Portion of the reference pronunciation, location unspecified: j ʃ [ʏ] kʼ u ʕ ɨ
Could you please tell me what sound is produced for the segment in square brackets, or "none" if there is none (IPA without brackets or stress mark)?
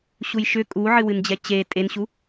ʏ